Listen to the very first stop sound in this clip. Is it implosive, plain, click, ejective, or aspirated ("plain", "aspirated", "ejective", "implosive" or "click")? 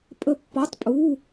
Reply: ejective